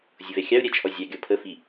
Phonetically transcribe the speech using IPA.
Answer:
zʲʊvɛxʲɑu̯ ɾʲæt͡ʃʰɔzʲɑ ɡʲɔpʰə fi

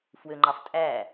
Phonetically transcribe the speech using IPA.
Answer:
fwøŋ͡ǃɑf tʼæ

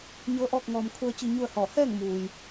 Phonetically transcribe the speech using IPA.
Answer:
ɲɤː˧˥ʔɔː˥˨k̚ŋɔː˧m kʰu˧ə̯t͡ɕi˧ ɲu˥˨ə̯hɔː˧˩ hɛː˥˨ŋmuː˩j

